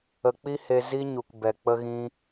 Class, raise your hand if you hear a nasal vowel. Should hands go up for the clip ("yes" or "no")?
yes